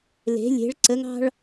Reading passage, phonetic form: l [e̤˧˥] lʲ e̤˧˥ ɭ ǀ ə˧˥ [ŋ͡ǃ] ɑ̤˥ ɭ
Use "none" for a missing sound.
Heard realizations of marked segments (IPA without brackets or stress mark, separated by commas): e̤˧˥, ŋ